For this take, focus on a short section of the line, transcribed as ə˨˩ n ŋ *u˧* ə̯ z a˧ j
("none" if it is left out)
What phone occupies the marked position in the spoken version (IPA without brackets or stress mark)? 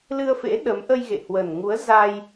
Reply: u˨˦